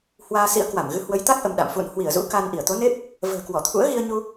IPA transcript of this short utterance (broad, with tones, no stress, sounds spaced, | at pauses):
h w aː˧ s ḭ˧˥ ə̯ k w a˧˩ m ɣ ɨ˨˦ h w ə˨˦ j t̪ a˦˥ k̚ ʔ ə˧ m ɗ a̰˧˨ m f ṵ˧˨ n h w i˧˩ ə̯ z ṵ˧˥ k a˧ n ʔ i˧˩ ə̯ t̪ o˨˦ n e˦˥ p̚ | v ə̤ː˨˩ k w ɔ˧˩ t̪ʰ ṵ˧˥ ə̯ ɣ i˧ ə̯ ɲ u˧